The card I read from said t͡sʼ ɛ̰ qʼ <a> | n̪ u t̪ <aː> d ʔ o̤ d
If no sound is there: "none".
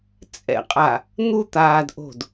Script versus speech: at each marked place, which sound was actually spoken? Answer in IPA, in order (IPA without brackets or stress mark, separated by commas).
a, aː